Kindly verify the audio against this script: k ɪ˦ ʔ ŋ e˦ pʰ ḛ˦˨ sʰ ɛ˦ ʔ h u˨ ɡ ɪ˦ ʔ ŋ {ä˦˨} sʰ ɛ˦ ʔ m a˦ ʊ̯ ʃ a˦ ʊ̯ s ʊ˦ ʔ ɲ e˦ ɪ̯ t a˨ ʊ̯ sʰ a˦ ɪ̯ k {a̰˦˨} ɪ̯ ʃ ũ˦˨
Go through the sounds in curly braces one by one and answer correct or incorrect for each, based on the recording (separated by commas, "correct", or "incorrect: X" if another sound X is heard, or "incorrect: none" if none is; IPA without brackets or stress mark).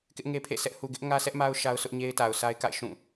incorrect: ä˦, correct